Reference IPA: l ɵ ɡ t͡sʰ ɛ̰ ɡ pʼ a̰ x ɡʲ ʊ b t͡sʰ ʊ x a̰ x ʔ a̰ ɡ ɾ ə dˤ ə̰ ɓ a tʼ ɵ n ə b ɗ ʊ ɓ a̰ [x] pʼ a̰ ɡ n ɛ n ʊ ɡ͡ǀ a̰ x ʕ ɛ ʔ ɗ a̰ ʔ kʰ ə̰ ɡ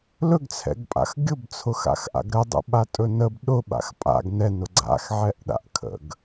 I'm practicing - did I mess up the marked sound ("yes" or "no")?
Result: no